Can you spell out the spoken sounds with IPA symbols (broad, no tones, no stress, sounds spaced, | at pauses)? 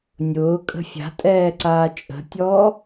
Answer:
nʲ ʊː kʼ ə̤ fʲ a̤ tʼ ɛː ǀ aː t͡ʃʼ ə̤ tʲ ɔː